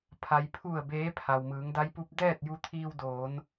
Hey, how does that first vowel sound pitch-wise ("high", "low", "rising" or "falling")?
low